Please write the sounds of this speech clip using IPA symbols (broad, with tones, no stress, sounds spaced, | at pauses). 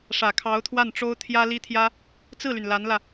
ʂ ä˨˩ kʰ ɑ˧˥ ʊ̯ t̪ʰ w a˥˩ n ʈ͡ʂ o˥ ʊ̯ t̪ʰ j ä˥ l i˥ t̪ʰ j ä˥ | t͡s ɹ̩˥˩ l y˩ n l a˧˥ n l ä˧